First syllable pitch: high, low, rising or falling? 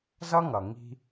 high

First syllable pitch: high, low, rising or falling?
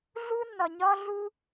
high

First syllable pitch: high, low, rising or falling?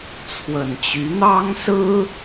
low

